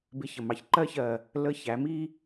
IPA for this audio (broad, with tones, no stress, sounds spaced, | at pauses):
b ɪ˧ ç ə˨ m ɑ˧ ç ǃ ɜ˧ ç ɜ˨ | l ə˧ ç æ˨˦ m i˧